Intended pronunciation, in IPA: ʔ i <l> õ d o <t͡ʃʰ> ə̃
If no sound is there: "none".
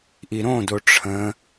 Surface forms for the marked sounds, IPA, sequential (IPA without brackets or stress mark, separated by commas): ɾ, ʈ͡ʂʰ